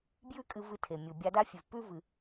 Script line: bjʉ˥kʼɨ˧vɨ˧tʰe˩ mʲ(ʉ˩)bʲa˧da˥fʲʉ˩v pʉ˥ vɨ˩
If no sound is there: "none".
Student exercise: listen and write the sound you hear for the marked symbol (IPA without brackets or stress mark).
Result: u˩